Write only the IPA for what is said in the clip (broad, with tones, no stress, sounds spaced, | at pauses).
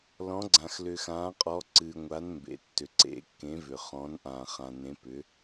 l ɔ̃˨˦ ɡ͡ǀ ã˨ x l ʏ˨ x ãː˨˦ qʼ ɔ˨˦ ǀ ɨː˨ ŋʷ a˨˦ n m b ḛ˨ tː ʏ˨ ǀ ḛ˨˦ kː ẽ˨˦ v ʏ˨ χ ɔ̃˨˦ n ʔ ãː˨ χ ã˨ n ẽ˨˦ p ʏ˨˦